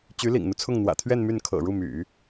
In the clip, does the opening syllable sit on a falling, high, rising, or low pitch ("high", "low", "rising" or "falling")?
rising